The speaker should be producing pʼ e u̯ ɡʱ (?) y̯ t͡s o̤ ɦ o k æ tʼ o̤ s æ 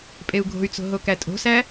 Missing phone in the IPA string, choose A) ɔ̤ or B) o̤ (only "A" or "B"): B